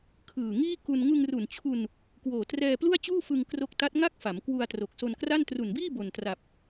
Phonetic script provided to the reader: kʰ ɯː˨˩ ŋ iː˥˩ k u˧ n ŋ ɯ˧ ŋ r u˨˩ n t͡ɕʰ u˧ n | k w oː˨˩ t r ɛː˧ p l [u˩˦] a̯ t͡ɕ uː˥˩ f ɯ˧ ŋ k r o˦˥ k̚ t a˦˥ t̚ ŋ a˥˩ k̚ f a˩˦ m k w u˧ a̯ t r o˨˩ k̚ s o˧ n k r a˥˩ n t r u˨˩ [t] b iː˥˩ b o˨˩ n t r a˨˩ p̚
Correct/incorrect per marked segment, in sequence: incorrect: u˥˩, incorrect: n

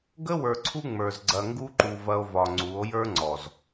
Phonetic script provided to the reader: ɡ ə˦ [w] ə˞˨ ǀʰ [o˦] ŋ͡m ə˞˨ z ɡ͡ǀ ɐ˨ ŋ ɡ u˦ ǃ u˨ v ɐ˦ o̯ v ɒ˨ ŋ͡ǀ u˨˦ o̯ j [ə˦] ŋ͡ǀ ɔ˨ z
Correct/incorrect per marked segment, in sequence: correct, incorrect: u˦, incorrect: ə˞˦

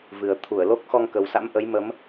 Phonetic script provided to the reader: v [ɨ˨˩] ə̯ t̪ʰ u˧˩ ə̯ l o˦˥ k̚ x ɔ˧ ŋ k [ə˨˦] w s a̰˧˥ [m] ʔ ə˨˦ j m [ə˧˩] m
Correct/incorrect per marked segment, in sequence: correct, incorrect: ə˨˩, correct, incorrect: ə˨˦

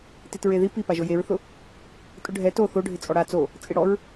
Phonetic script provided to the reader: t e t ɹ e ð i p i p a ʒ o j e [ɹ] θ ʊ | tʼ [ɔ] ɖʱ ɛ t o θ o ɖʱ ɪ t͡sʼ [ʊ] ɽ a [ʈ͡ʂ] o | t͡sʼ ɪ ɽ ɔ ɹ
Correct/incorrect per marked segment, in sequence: correct, incorrect: ʊ, incorrect: ɔ, incorrect: t͡s

